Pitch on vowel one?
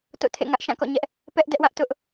falling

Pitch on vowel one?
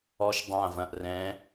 high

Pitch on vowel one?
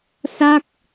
falling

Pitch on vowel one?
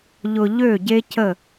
low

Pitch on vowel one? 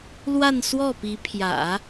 falling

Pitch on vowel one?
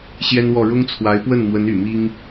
high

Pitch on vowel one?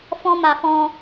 high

